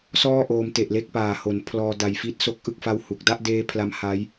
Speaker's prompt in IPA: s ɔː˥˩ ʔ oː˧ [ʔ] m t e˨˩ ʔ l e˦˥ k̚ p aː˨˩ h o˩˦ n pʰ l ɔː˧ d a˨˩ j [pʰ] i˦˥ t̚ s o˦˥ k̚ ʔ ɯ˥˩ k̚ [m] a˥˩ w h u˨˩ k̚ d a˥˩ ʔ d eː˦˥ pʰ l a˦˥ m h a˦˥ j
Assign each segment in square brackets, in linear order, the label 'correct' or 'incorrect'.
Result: incorrect, incorrect, incorrect

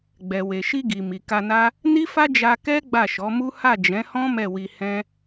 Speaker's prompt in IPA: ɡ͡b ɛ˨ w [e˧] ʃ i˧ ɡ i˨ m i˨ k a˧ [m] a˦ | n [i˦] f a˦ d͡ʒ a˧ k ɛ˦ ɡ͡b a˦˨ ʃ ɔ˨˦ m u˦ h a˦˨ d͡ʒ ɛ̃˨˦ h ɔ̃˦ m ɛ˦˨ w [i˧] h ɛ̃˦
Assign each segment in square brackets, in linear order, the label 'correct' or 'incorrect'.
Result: incorrect, incorrect, correct, correct

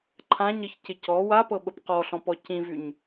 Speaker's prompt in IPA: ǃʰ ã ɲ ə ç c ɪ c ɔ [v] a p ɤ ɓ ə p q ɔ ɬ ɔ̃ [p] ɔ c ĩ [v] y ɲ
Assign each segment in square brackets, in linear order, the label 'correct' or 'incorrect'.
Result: incorrect, correct, correct

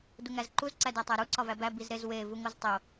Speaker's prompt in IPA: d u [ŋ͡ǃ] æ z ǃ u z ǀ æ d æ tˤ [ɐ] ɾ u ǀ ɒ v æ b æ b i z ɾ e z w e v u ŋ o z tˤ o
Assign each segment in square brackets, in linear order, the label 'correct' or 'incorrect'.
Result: incorrect, incorrect

